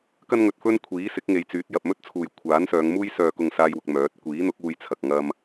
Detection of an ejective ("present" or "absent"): absent